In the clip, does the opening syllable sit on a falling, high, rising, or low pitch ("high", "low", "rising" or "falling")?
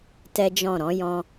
high